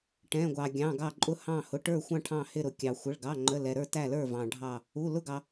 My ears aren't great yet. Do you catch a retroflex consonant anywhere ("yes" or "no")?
yes